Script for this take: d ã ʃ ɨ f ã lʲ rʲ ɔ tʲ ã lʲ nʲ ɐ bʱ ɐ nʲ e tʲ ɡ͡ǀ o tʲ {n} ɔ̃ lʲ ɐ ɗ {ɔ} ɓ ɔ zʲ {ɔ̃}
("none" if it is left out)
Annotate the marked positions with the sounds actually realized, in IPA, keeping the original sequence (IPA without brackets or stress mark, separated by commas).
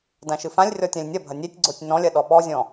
n, ɔ, ɔ̃